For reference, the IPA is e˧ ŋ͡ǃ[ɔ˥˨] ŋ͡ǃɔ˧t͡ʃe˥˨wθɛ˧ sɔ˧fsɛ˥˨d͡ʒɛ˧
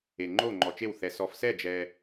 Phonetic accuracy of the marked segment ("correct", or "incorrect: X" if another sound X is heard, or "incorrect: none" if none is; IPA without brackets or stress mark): incorrect: o˥˨